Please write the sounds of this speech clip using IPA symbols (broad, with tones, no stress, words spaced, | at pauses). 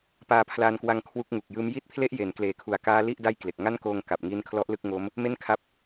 paː˧pʰlaː˧nkwa˧ŋ kʰwu˦˥k̚ŋu˨˩k̚jɯː˦˥m ji˦˥t̚pʰle˦˥ʔ je˩˦n kleː˩˦kʰu˩˦a̯ kaː˦˥li˥˩ʔ da˥˩j kle˨˩k̚ ŋa˥˩nkoː˧ŋ ka˨˩p̚ŋi˦˥n kʰlɔ˦˥ʔlɯ˥˩k̚ŋo˦˥m | me˥˩nkʰa˦˥p̚